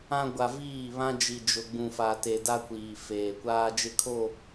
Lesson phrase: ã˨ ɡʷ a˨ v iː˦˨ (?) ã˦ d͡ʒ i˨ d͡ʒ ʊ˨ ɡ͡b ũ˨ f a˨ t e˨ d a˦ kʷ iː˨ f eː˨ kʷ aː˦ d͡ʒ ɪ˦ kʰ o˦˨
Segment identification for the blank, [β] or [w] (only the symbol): β